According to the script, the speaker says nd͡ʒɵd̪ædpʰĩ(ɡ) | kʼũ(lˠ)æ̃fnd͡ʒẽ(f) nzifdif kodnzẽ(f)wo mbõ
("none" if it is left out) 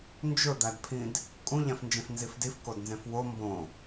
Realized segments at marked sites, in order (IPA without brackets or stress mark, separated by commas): d, ʎ, f, f